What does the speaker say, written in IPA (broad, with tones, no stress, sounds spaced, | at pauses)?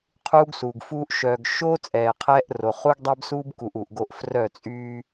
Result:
qʰ uː˦ ɡ s uː˨ ɡ f uː˦ ʔ ʃ œː˨ ɡ ʃ oː˦ t͡sʼ ɛː˨ qʰ ɛː˦ ʔ r o˨ χ u˦ ɡ dˤ ɛː˦ b s uː˦ b k u˨ ʔ uː˨ ʔ ɡ o˦ ʔ f r œ˦˨ t͡sʼ yː˦